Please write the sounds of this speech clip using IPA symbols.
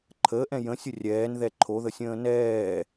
ǃʰ əː ʔ ɛ̃ j ə̃ sʲ ə rʲ ɛː n ð ɛ ǃʰ o ð ə sʲ ə̃ː n ɛː

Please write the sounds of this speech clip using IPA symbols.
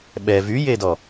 ɓ ɛ v y j e d ɔ

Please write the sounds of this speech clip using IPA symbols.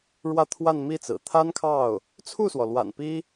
ɻ w ä˥˧ t̪ʰ w a˥˧ n m i˥˩ t͡s ɹ̩˨˩ t̪ʰ a˥ n kʰ ɑ˥˩ ʊ̯ | t͡sʰ u˥˩ s w ɔ˩ l w a̰˨˩ n p i˥

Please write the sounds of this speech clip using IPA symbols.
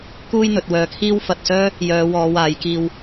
k uː˥ j n̪ ɵ˨˥ t̚ w œː˧ kʰ iː˥ w f ɐ˧ t̚ s œː˥ | j œː˨˧ w ɔː˨˧ w aː˨˧ j k iː˧ w

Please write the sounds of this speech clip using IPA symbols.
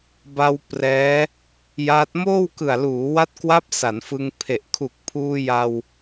b a˧ w p r ɛː˦˥ | j a˦˥ t̚ m oː˥˩ w k ɯ˨˩ a̯ l uː˩˦ w a˦˥ t̚ k w a˦˥ p̚ s a˩˦ n f ɯ˧ ŋ pʰ e˨˩ ʔ kʰ u˨˩ k̚ pʰ uː˧ j a˧ w

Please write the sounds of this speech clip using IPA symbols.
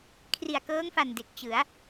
kʰ r i˨˩ a̯ k ɤː˦˥ ŋ f a˨˩ n d e˨˩ k̚ t͡ɕ ɯ˩˦ a̯

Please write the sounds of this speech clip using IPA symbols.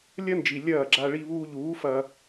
lʲ ɐ˦ n d͡ʒ i˨ lʲ ɐː˦˨ ɡ͡ǁ a˧ ɭ i˧ β uː˧ ʎ uː˨˦ f ɐː˧

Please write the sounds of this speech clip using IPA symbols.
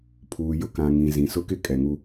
pʰ uː˨ j ʊ˦ k ã˨ ŋ ĩ˨ z ĩ˨ s ʊ˦ k ɪ˦ kʼ ɛ˨ ŋ u˦

